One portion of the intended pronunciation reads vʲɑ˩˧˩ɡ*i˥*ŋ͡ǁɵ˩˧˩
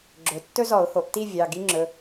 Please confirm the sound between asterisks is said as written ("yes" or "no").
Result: yes